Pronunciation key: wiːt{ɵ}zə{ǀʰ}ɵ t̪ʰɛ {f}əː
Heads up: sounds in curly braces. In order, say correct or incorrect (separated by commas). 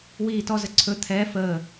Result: incorrect, correct, correct